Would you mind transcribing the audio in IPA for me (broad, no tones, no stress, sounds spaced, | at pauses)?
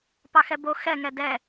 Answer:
p ɑ x ɛ b o x ɛ ŋ ɛ d ɛ